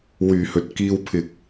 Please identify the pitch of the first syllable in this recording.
low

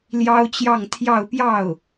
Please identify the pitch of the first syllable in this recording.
high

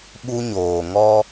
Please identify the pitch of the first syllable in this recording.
high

